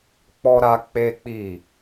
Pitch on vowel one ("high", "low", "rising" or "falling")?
high